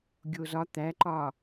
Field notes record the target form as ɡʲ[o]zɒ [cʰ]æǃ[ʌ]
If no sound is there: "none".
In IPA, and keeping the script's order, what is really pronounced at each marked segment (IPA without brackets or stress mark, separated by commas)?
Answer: o, t̪, ɒ